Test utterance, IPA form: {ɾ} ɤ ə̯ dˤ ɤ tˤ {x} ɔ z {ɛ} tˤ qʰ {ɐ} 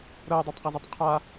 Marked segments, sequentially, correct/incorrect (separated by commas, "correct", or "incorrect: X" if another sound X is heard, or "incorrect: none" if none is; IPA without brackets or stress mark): correct, incorrect: q, correct, incorrect: a